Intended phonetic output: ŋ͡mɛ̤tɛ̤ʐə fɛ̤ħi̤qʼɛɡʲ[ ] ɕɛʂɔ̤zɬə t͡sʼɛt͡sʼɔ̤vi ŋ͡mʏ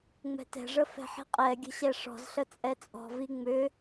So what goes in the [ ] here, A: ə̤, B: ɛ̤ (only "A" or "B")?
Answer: A